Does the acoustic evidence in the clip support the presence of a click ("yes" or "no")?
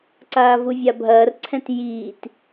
yes